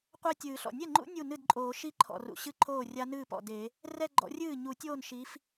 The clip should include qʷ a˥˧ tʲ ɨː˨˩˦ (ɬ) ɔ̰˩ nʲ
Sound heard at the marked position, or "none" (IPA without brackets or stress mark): ɬ